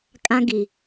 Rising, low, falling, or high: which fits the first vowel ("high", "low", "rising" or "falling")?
high